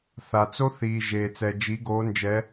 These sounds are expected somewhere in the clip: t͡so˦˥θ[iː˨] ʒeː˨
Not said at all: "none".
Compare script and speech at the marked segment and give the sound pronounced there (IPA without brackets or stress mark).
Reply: iː˨